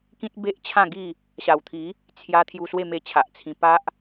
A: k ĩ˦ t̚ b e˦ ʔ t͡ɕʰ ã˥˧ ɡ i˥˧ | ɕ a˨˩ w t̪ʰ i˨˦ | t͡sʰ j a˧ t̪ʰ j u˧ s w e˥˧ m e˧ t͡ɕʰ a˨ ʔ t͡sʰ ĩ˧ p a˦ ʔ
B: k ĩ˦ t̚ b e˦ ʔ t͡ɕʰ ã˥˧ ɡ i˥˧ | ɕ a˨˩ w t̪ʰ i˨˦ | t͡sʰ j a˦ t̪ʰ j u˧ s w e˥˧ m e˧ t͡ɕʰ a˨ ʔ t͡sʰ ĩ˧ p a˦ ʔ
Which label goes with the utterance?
A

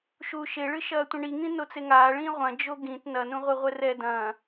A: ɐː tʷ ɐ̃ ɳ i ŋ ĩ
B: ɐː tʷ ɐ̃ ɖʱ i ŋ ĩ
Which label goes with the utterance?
A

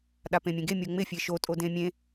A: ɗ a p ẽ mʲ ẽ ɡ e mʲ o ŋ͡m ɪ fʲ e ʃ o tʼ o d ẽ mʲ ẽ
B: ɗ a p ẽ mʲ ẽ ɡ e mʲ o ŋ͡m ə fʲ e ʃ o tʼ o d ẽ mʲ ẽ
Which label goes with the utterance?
A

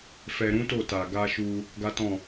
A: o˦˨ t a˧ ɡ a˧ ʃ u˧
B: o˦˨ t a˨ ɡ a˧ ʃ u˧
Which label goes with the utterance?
B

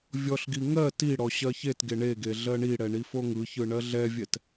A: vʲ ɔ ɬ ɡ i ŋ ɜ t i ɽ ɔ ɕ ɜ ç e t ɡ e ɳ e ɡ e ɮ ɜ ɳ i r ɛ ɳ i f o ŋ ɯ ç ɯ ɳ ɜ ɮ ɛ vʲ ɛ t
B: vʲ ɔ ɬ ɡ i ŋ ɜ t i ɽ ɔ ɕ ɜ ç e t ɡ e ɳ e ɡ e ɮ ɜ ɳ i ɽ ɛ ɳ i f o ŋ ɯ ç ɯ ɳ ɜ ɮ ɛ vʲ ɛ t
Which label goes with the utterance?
B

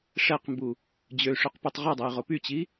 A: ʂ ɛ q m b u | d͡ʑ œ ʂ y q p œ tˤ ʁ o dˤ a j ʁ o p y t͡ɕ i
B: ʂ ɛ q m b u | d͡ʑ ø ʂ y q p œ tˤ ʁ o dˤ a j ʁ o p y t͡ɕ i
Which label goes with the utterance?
B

